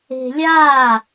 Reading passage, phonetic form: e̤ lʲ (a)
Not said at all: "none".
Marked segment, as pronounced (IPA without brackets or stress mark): a